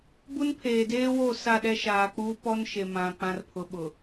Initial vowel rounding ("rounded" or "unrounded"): rounded